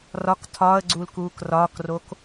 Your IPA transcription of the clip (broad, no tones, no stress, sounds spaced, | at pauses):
r ɒ k tʰ ɒː ə̯ ɡ͡ǀ u l k uː k r ɒː k r o k